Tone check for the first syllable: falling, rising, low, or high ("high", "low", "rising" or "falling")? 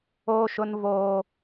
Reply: high